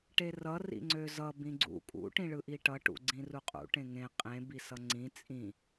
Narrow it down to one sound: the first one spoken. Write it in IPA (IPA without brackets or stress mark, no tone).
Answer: ʈ